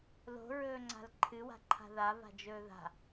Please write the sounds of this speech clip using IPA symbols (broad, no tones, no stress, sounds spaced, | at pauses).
l o̤ ɹ ɵː ŋ͡ǀ a̤ l ǃʰ ɨ w a̤ ǃʰ a̤ ð a v a̤ d͡ʒ ɵː ð a̤